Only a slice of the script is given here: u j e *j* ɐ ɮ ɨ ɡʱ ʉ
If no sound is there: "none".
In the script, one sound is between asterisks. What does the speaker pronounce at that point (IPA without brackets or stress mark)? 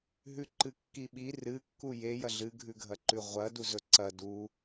j